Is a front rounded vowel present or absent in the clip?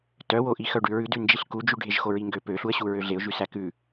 present